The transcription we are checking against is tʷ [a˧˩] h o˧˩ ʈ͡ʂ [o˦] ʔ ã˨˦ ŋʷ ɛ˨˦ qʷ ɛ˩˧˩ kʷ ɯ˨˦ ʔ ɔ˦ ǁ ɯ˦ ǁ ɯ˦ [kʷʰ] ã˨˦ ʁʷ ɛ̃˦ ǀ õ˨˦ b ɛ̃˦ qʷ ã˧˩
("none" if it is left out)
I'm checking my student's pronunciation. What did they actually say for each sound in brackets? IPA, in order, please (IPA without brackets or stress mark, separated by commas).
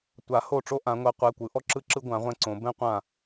a˨˩˦, o˦, ɡʷ